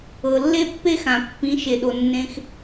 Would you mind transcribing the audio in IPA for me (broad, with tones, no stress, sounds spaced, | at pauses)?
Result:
ɤ˩ lː e˥ pː e˥ x ã˩ pː ĩ˩˥ ʃ e˩ ɗ o˩ nː ẽ˧ x